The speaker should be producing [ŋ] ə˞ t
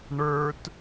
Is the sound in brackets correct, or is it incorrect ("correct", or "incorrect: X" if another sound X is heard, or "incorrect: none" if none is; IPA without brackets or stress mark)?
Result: incorrect: ɳ